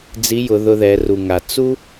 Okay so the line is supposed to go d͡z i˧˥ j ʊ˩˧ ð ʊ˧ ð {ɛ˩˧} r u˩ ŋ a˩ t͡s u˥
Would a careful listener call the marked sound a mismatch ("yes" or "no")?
no